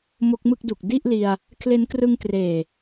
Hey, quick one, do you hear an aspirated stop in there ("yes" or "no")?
yes